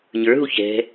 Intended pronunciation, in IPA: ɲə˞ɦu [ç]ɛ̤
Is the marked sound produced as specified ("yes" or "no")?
yes